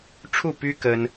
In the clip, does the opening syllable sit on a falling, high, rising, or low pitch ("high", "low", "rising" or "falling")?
falling